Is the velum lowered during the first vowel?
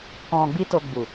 yes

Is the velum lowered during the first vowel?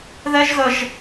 no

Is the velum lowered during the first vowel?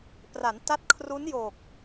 no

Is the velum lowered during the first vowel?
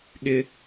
no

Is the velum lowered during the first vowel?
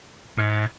yes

